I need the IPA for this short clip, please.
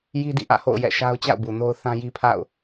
j i˦ d ḭ˦˨ ʔ ä̰˦˨ h o̰˦˨ ʊ̯ j ɛ̰˦˨ ʃ a˦ ʊ̯ t͡ɕ a̰˦˨ ʊ̯ b u˨ n o˦ ʊ̯ θ ã˦ j i˦ pʰ a̰˦˨ ʊ̯

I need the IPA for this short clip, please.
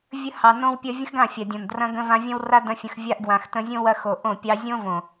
vʲ ə˧ h ɑ˨ n õ˦ w pʲ ɐ˦ vʲ ə̃˦ x ɡ ã˦˨ fʲ a˨ dʲ õ˨ n d r ɐ̃˧ ɡ ə̃˧ v ã˧ vʲ ɐ̃˦ w r a˦ d ɐ̃˦ fʲ ə̃˧ x vʲ a˧ ʔ ɡ w ã˨ x t ə̃˧ zʲ õ˦ w ɐ˧ x o˨ ʔ õ˦˨ pʲ ɑ˦ zʲ õ˦ v õ˨

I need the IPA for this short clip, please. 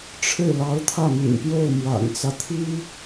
ʈ͡ʂʰ ɻ̩˥˩ l ɑ˧˥ ʊ̯ t̪ʰ ä˥˩ m y̰˨˩ n p j o˥˩ ʊ̯ m w a̰˨˩ n t͡s ä˦ t̪ʰ i˥

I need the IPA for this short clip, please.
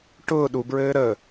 ʈ ʊː ɗ u b ɹ ɘː ɾ ə

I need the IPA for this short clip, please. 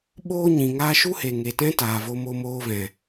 ɓ oː˦ ɲ ĩ˨ ŋ aː˧ ʃ u˦ h e˨ ŋ e˨ t ɛ̃˦ t aː˨ v o˧ m o˧ m oː˧ v ɛ̃˨

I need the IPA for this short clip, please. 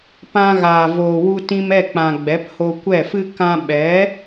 p ã˧ ɣ aː˨ v oː˨ w u˧ t ĩ˧ m ɛ˦˨ k͡p ã˨ ɡ͡b ɛ˨˦ p h o˧ kʷ ɛ˦˨ f ɨ˦ k ã˧ ɓ ɛ˨˦

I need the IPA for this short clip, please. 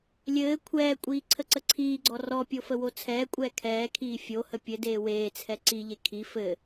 lʲ ɘː kʷʰ ɛː kʷʼ iː ǀʰ ə ǀ ə ǀʰ iː ɡ͡ǀ ɔ r ɔ pʲ o f ə w o t͡sʰ ɛː kʷʼ ɛː kʰ ɛː kʰ iː fʲ o h ə pʲ ɘ d eː w eː t͡sʰ ɛ ǀ i ʎ e kʰ i f ɘ

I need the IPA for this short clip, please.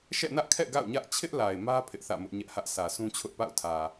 ʃ ɛ̰˦˨ n ä˦ ʔ kʰ ɛ̰˦˨ ɡ a̰˦˨ ʊ̯ ɲ ä˦ ʔ t͡ɕʰ ɪ˦ ʔ l a˨ ɪ̯ m ä˦ pʰ ɪ˦ ʔ θ ä̰˦˨ m ʊ˦ ʔ ɲ ɛ˦ ʔ h ä˦ ʔ sʰ ä˨ s ũ˦ t͡ɕʰ ʊ˦ ʔ p a̰˦˨ ʊ̯ tʰ ä˨

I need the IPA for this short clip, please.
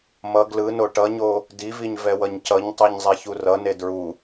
m ʌ ɡ l ɯ n o ʈ ʌ ɲ o | d i v i ɲ v ɛ w ʌ ɲ c ʌ ɲ tˤ ɛ ɲ zˤ ɛ ç u r ʌ n e d ɹ u

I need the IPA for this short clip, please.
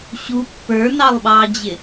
ɕ u pː ə˞ n ɑ lˠ ɓ ɑː d͡ʑ ɪ

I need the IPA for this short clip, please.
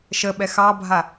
ʃ ə ɓ ɛ x ɑ bʱ a

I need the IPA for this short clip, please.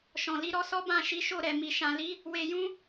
ʃ ɔ̃˨ l i˨˦ ɾ ɔ˦ s ɔ˦ b ã˦˨ ʃ i˨˦ ʃ o˦˨ ɾ ɛ˨ m i˨ ʃ ã˨ l i˨˦ | w e˧ j ũ˦

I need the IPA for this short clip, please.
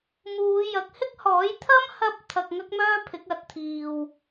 m uː˨˧ j ɐ˨˥ k̚ h ɪ˥ k̚ h ɔː˨˥ j t̪ʰ ɐ˥ m h ɐ˧ p̚ t̪ʰ ɐ˧ k̚ ŋ ɐ˥ k̚ m œː˥ pʰ ɪ˨˥ k̚ ɐ˨˥ t̚ t̪ʰ iː˨ w

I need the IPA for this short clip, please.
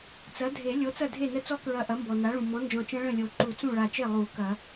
t͡s ɐ˩˥ dʱ e˨˩˦ lʲ o˩˥ t͡s ɐ˥˩ dʱ e˥˩ n ə˦˥ t͡s ɔ˦˥ k ɹ ɐ˧˩ ʔ ɐ˩˥ m b ɔ˩ n a˩˥ ɭ ũ˩ m ɔ̃˩˥ n d͡ʒ ɔ̃˧˩ t͡ʃ ɐ̃˦˥ ɭ ə̃˥˩ lʲ o˨˩˦ ǃ u˨˩˦ t͡s ũ˥˩ ɭ a˧˩ t͡ʃ e˥˩ lˠ u˨˩˦ k ɐ˨˩˦

